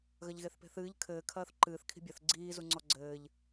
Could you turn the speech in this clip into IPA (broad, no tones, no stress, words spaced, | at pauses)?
ɣɐʎɣeθpe̤θɨːʎ kʰɘːkʰɐːθ ǃɨːθkʰi̤ bʲɐθ ɡ͡ǀiːzu ŋ͡ǀɔɡ͡ǀɘːʎ